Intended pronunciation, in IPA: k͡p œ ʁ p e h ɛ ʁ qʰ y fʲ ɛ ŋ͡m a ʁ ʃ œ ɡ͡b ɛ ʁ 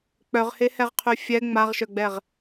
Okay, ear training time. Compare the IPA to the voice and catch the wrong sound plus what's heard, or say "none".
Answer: p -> h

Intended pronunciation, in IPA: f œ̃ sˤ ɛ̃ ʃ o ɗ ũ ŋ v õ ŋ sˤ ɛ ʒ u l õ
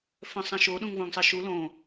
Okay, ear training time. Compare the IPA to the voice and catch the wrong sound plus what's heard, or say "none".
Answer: ʒ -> ʃ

